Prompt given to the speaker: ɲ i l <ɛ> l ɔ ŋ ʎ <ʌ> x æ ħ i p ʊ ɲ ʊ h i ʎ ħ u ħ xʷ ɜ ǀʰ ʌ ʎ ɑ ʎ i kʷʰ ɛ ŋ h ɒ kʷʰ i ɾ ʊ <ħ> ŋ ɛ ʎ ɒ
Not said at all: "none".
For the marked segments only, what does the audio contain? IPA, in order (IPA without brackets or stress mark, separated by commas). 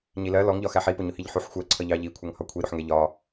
ɜ, ɒ, ħ